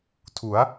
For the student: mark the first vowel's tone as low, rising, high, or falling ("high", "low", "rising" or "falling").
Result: rising